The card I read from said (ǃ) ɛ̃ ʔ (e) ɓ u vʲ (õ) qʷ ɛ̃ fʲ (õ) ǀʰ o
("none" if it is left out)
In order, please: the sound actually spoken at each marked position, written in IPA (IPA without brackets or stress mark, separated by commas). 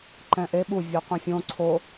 ǃ, e, o, õ